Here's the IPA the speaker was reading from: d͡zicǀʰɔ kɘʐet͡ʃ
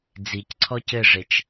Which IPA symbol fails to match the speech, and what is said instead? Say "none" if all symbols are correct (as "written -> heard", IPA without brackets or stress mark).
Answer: k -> c